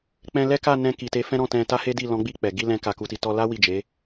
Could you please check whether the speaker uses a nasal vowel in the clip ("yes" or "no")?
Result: yes